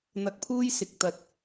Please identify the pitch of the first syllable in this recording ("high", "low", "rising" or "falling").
rising